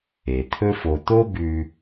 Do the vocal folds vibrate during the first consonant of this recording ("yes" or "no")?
no